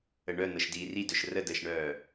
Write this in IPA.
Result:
ə ɳ œ n̪ ɤ ʃ d iː r i d œ ʃ r ə d əː ʃ ɳ œː

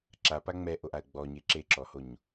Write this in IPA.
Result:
ǁ a p a ŋ͡m ɛ ʔ o ʔ a ə̯ ɡ͡b ɔ ɲ e ǁ e ǁ ɔ h o ɲ

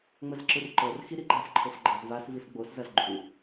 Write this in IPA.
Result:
ŋ͡m ə z ǁ ɯ r ǃ ɤ r x i ɾ i ɡ͡ǃ a s ǃʰ ɤ f ɡ͡ǃ ɤ z v a s v i s ɡ͡b o s z ɐ z ɡ͡ǃ u

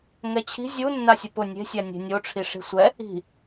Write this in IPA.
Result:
ŋ ɛ t͡ɕʰ i̤ zʲ u nː a sʲ ʊ p ʊ nʲ e̤ sʲ a nʲ e̤ nʲ o ʈ͡ʂʰ i ʂ i̤ sʷ ɛ | i̤

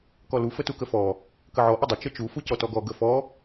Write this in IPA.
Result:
k ɔ l u f ə t u k ə f ɔ | k ə ʕ ɔ ʔ ɘ dˤ ə t͡ʃ ə t͡ʃ u f u c ɔ t ɔ ɡ ɔ ɡ ə f ɔ

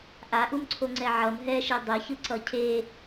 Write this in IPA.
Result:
ʔ a ʔ u m ǀʰ o ŋ͡ǀ ɛ ʕ ʌ m ɦ ɛ ʃ i dˤ i ç ɯ ǀ ʌ cʰ e

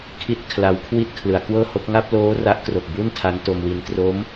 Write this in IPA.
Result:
kʰ i˥˩ t̚ kʰ l a˦˥ w kʰ w i˥˩ t̚ kʰ l ɯ˩˦ a̯ k w ɤː˥˩ h o˦˥ k̚ ŋ a˥˩ p̚ l oː˦˥ r a˦˥ ʔ k r o˨˩ k̚ b u˥˩ n tʰ a˦˥ n t o˧ m w i˧ n t r o˦˥ m

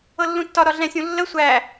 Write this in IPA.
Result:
ɤ lː ũ tː ɒ ɾ ɒ ɮ ɛ̃ sʲ ũ lː ə sʷ æ

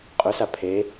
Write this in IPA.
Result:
qʼ œ s a pʰ e

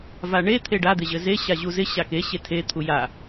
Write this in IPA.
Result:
v a ɳ e t̪ʰ e ɖ a d̪ ɪ ʑ ɘ z e ɕ a ʑ u z ɪ ɕ a k e ɕ e tʰ e t̪ʰ u j a

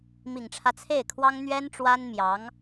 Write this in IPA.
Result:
m i˨˩ ŋ ʈ͡ʂʰ ä˦ t͡sʰ e˥˩ ɪ̯ kʰ w ɑ˥ ŋ n̪ ɥ ɛ˥ n ʈ͡ʂ w a˥ n m j ɑ˧˥ ŋ

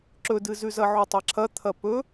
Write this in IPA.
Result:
ǁ ɵ d ɨ z ʉ z ɐ ʕ u tˤ a ǁʰ ɐ t̪ʰ ɐ p ɵ

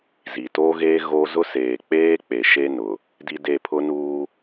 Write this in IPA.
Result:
z i˨ t oː˦ ɣ eː˦ ɣ o˦ z ʊ˦ s eː˨ k͡p eː˦ k͡p e˨ ʃ e˦ n ʊ˨ | d i˦ d e˦˨ pʰ ʊ˦ n uː˦

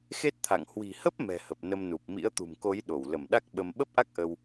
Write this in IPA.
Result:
x e˦˥ t̚ t̪ʰ a̰˧˨ ŋ h w i̤˨˩ h ə˦˥ p̚ m ɛ̤˨˩ h ə˨˩ p̚ n ə˧ m n u˨˩ p̚ m ḭ˧˥ ə̯ t̪ ṳ˨˩ m k o˨˦ j ɗ o˧˩ w l ə˧˩ m ɗ a˦˥ k̚ ɓ ə˧ m ɓ ə˦˥ p̚ ʔ a˦˥ k̚ ʔ ə˧ w

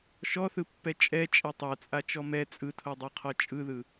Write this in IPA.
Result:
ʃ ɔ θ ɯ pː ɛ t͡ʃʼ ɛ t͡ʃʼ ɛ tˤ a t͡sʼ a t͡ʃ ɔ m ɛ t͡sʼ ɯ tʰ o dˤ o qʰ ɔ t͡ʃʼ ɯ ð ɯ

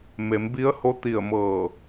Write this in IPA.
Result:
m e˩˧ m b i˧˥ ə̯ h o˧˥ t̪ i˧˩ ə̯ m ɤː˧˩

